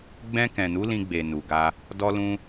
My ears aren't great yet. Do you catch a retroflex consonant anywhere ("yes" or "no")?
no